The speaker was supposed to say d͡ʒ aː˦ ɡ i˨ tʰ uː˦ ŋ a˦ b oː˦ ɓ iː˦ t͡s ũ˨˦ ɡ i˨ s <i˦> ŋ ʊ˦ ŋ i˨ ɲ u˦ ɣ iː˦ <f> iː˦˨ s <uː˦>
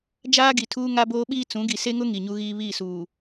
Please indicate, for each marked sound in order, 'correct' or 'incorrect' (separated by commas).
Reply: incorrect, incorrect, incorrect